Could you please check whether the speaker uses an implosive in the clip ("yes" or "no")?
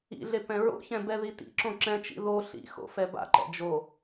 no